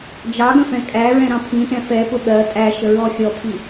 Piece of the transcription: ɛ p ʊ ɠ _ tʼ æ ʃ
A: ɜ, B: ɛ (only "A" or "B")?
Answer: A